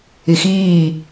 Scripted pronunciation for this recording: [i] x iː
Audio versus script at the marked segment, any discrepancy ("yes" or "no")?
no